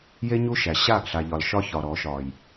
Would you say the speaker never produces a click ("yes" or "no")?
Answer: yes